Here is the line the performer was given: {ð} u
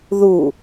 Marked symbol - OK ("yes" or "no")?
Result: yes